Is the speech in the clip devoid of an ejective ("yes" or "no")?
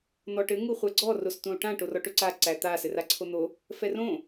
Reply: yes